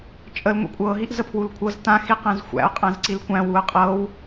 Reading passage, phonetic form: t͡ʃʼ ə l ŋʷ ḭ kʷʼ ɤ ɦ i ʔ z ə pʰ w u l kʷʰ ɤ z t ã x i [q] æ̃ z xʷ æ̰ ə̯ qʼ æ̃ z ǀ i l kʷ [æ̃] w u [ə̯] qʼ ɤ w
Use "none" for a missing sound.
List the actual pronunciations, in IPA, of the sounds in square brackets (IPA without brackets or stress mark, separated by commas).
q, æ̃, ə̯